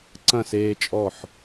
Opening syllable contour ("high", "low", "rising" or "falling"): falling